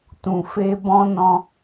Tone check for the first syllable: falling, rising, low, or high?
low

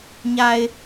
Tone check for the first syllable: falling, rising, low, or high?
low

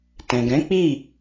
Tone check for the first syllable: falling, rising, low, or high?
low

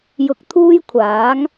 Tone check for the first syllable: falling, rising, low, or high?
high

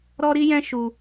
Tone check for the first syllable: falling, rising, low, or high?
high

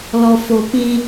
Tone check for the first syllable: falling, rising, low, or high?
low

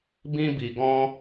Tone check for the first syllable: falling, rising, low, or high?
high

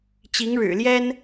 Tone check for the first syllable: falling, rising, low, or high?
rising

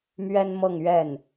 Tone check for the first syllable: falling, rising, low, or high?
high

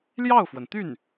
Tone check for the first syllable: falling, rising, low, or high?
falling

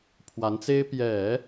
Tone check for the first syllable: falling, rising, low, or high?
rising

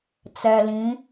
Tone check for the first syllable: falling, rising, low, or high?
low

